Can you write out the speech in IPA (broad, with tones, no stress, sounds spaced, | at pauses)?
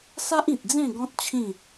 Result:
s a˦ ʔ ĩ˨ t̚ d͡z ẽ˥˧ ɡ ɔ̃˦ t̚ t͡ɕʰ ĩ˥˧